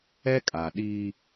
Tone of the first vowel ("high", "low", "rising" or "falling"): high